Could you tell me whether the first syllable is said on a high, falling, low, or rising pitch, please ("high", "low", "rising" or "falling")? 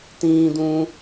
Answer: high